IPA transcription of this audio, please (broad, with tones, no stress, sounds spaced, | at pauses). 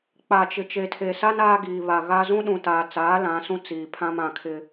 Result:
k͡p a˨ t͡ʃ ɪ˨ t͡ʃ e˨ tʰ e˨ s a˦ n aː˦ ɡ iː˨ β a˨ ɣ a˦ z ũ˦ ɗ ũ˨ t aː˨ t͡s aː˨˦ l ã˨˦ s ũ˦ t͡s iː˨ pʰ ã˦ m ã˨ kʰ ɪ˦